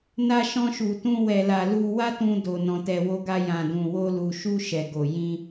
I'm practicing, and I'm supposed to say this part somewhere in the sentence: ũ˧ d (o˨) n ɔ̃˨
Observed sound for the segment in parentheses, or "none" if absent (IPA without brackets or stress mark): o˨